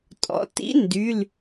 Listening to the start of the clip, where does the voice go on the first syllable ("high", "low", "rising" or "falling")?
low